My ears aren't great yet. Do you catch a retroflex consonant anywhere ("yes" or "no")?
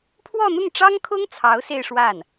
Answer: yes